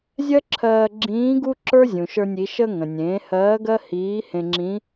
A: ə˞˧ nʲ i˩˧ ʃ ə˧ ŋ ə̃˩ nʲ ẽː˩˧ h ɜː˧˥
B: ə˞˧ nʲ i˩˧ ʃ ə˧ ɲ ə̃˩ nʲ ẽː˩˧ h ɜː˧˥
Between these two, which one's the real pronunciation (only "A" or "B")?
A